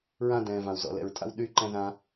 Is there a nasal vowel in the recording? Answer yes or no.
yes